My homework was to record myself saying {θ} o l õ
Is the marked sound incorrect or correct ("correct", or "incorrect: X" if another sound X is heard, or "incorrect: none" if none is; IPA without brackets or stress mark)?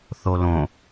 correct